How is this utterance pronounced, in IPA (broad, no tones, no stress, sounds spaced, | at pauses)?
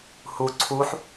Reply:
h u ǀʰ u ħ